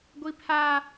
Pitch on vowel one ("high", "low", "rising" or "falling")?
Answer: high